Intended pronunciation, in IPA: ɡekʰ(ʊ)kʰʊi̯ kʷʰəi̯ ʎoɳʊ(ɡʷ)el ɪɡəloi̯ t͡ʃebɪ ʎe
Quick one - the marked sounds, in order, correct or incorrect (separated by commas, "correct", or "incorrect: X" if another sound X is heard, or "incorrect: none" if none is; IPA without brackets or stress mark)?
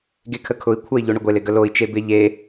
incorrect: ə, correct